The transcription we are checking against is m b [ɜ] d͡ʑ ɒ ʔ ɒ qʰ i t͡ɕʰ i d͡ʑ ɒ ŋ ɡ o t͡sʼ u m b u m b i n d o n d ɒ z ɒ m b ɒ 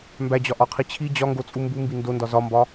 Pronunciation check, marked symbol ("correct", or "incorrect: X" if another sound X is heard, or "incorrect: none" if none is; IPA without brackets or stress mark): incorrect: æ